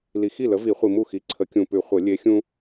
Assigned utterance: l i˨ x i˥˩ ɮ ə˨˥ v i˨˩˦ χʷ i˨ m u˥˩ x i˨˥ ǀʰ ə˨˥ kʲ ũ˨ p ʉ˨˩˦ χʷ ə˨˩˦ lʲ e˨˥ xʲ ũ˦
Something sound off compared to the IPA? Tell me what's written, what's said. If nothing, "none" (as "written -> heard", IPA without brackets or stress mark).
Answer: ɮ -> l